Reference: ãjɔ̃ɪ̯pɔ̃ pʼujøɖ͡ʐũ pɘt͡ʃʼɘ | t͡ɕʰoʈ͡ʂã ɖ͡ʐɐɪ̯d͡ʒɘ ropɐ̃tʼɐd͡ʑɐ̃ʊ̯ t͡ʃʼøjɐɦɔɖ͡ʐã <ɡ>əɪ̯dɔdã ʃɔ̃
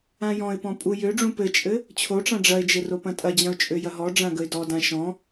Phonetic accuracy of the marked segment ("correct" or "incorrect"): correct